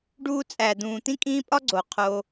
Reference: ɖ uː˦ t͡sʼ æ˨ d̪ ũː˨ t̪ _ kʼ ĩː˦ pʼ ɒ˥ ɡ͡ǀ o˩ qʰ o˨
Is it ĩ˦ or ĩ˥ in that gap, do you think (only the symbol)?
ĩ˥